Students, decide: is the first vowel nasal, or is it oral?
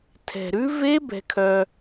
oral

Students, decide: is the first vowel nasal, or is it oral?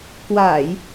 oral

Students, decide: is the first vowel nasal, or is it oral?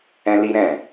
nasal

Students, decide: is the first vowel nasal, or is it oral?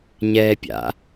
oral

